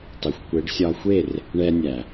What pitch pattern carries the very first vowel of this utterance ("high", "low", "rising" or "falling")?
low